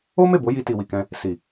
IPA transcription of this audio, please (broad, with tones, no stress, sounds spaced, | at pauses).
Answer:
o˦ m e˦˨ b o˨˦ j i˧ t i˨ w i˨ k ɛ̃˧ | s i˨